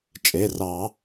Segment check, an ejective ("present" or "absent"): present